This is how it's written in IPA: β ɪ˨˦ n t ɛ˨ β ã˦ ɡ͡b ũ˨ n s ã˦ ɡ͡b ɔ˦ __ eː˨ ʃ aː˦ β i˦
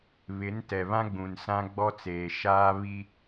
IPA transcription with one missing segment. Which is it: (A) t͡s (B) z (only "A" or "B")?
A